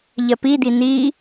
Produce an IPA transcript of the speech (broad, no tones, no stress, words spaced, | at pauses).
ʎɜpid̪i n̪i